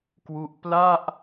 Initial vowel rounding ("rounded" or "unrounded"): rounded